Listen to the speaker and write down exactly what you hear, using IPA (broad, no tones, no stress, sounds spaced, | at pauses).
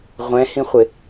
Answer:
ʁʷ ɛ̃ h ĩ χʷ ɪ